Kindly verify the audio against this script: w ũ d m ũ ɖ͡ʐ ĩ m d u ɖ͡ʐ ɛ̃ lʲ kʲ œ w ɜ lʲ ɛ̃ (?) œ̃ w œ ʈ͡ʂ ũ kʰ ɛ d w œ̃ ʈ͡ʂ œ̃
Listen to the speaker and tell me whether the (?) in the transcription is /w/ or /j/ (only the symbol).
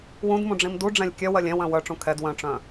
w